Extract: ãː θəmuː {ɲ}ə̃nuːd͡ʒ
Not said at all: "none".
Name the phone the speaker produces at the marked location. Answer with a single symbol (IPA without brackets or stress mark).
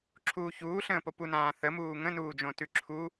ŋ